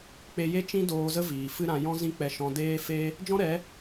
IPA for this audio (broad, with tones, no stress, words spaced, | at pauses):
k͡pe˧je˦t͡ʃĩ˦ doː˧zə˦ viː˨fɨ˦ ɾã˧ jɔ̃˦zĩ˦k͡pɛ˧ ʃɔ̃˧deː˦fe˦ | d͡ʒɔ̃˦ɾɛ˨˦